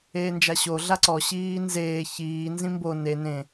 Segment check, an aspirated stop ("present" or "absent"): absent